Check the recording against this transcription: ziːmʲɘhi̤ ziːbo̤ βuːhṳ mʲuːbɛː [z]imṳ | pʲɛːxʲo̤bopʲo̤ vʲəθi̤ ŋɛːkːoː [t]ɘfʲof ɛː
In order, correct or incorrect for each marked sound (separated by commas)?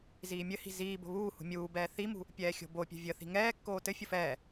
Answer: incorrect, correct